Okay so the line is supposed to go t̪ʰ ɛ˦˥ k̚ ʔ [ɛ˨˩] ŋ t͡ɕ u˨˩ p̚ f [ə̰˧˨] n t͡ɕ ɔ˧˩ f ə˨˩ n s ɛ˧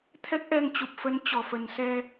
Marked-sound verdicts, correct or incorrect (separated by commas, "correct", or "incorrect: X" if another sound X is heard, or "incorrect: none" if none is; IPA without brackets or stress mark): incorrect: ɛ˧, incorrect: ə˧